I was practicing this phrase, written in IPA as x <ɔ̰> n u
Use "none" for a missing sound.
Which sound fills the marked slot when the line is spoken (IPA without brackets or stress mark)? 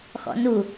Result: ɔ̰